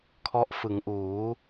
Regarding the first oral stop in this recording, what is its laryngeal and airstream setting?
aspirated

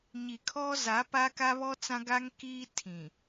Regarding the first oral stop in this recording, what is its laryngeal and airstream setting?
aspirated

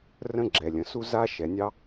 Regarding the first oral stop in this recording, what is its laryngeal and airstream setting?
click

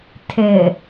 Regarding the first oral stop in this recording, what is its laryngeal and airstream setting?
aspirated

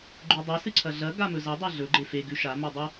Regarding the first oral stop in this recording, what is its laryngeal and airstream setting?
click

